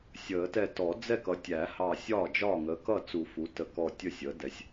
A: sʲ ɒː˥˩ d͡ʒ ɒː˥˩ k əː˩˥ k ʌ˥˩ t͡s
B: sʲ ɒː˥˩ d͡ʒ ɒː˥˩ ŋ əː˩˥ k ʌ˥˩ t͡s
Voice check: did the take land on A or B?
B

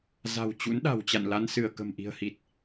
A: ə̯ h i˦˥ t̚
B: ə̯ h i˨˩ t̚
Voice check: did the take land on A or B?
B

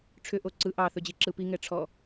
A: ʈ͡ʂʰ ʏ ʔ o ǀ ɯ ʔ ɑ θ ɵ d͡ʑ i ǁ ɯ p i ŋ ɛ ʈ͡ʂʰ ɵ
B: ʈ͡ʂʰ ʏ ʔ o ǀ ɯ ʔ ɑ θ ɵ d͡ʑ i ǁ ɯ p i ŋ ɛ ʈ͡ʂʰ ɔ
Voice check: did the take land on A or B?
B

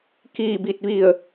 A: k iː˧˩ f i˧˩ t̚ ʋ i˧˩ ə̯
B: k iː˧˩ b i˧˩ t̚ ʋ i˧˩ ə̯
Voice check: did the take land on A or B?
B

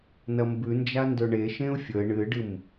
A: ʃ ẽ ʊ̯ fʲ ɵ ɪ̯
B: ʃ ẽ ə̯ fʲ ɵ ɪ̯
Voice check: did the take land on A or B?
A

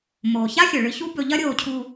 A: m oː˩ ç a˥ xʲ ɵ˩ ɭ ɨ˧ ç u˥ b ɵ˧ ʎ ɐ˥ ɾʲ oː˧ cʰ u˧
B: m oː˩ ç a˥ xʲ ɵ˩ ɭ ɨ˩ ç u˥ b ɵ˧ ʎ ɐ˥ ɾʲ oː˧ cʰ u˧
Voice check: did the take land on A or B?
A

